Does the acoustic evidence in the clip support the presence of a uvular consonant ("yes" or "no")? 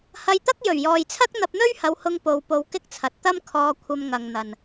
no